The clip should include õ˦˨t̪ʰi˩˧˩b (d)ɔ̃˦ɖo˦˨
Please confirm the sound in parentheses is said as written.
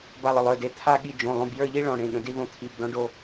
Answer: yes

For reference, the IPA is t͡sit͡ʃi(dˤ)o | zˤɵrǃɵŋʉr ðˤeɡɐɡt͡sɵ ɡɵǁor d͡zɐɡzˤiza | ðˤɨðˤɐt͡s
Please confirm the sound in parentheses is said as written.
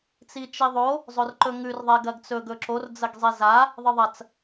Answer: no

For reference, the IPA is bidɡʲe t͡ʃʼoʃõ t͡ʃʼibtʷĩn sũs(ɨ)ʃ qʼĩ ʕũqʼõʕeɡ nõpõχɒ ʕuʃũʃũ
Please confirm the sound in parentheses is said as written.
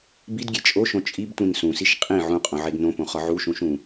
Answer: no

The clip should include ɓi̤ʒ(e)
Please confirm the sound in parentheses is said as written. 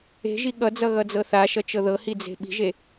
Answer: yes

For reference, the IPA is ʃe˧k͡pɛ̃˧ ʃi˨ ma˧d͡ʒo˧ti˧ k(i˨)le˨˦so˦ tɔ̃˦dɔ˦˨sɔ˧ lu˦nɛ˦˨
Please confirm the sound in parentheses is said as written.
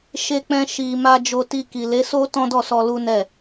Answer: yes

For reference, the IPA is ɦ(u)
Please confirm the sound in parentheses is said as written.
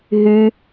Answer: no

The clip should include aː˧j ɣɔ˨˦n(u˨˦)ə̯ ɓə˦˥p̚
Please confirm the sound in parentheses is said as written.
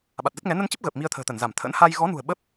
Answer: no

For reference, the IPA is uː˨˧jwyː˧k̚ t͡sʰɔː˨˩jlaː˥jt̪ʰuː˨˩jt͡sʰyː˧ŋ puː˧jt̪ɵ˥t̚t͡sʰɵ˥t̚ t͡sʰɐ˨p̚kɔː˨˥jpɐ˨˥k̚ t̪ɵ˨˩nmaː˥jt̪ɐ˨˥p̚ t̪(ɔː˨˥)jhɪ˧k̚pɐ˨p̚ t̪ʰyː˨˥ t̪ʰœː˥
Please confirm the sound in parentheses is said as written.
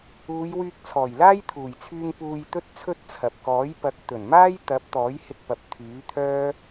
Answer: yes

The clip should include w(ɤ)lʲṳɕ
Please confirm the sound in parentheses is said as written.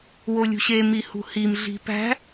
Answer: no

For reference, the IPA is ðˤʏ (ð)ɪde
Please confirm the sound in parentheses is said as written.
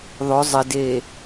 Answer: no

